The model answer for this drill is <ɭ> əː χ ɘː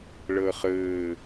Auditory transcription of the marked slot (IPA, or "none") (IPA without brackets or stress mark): ɭ